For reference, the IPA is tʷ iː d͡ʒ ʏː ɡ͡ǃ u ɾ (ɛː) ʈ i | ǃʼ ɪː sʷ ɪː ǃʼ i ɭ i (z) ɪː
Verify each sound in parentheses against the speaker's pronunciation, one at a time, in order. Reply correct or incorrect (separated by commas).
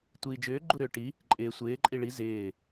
incorrect, correct